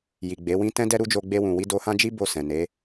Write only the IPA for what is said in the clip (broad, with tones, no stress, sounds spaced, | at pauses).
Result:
j i˨ ɡ͡b e˨˦ w ĩ˦ t ɛ̃˦ d ɛ˦ ɾ u˦ d͡ʒ o˧ ɡ͡b e˧ w ũ˨ w i˧ d o˧ h ã˦ d͡ʒ i˦ b o˦˨ s ɛ̃˨ n e˨˦